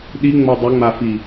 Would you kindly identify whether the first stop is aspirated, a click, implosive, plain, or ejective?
implosive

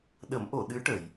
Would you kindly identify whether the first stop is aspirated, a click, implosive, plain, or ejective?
implosive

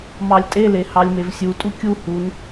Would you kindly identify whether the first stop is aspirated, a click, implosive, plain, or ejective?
ejective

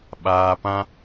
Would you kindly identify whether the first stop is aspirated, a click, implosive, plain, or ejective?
implosive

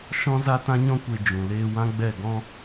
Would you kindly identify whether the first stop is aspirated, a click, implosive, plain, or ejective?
plain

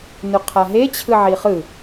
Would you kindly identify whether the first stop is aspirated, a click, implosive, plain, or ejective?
aspirated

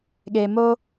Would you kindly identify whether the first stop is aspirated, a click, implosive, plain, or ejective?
implosive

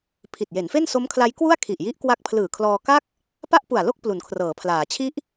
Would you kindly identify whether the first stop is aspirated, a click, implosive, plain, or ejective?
aspirated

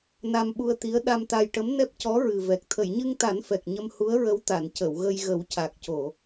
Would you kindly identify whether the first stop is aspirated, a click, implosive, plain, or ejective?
implosive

